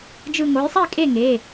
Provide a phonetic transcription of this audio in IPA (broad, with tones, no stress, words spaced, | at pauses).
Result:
d͡ʒɯ˧˩ŋo˩˥jsˤi˥˩ kʼe˥˩ŋe˩˧˩